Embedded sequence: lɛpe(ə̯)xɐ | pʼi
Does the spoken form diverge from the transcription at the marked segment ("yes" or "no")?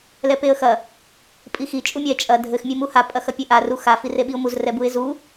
no